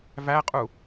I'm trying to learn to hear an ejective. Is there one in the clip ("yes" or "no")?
yes